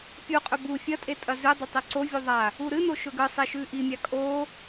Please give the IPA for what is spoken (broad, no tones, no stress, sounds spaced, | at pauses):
pʲ u qʼ ɵ b u fʲ ɐ tʼ e tʼ ɐ z ʉ dˤ ɵ tˤ i ǀ o vʲ u ðˤ a | u ɾ ɨ n o ʃ ɵ ɡ ɨ sˤ e ʃ ʉ ʔ i mʲ a kʼ o